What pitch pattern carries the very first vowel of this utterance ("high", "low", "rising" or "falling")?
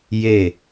falling